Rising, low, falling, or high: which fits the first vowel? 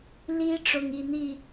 high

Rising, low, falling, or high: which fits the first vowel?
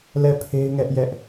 falling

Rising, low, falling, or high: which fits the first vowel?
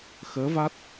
rising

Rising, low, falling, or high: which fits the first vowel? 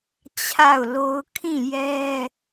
falling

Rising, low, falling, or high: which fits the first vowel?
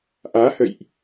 rising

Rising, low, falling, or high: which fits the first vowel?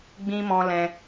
high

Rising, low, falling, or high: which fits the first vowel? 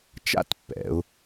falling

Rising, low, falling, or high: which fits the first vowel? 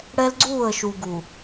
high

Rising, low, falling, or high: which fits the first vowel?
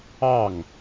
falling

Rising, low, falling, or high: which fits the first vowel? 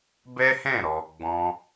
high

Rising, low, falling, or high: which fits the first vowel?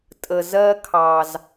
low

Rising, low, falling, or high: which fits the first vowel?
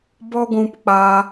high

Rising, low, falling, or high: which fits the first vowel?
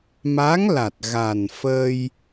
rising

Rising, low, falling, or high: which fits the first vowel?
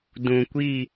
low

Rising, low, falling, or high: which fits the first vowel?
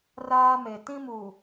high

